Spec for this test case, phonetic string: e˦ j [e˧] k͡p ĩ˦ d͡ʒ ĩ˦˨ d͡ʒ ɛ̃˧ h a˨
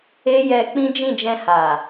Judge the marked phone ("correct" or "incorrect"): incorrect